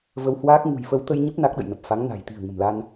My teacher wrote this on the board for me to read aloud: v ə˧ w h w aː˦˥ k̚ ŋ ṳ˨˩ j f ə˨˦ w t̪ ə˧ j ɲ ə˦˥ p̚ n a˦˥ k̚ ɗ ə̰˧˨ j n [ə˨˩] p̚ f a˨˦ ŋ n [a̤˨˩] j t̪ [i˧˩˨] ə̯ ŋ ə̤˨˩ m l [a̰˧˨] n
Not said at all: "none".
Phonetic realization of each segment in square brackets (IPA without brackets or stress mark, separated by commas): ə˨˩, a̤˨˩, i̤˨˩, a˧